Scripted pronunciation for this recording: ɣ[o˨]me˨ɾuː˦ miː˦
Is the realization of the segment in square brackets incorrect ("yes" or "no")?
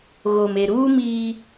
no